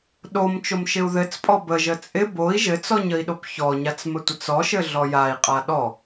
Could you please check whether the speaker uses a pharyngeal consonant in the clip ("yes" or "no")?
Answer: no